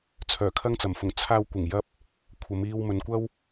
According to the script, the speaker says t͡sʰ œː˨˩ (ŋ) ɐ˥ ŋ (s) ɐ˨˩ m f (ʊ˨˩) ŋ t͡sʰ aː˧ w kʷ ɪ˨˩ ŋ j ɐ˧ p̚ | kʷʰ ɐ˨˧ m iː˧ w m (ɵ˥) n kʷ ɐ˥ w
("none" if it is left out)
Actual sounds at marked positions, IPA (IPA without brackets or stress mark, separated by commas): kʰ, t͡s, ʊ˨˩, ɵ˨